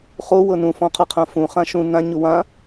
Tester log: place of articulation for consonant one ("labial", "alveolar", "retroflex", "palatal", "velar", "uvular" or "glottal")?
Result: uvular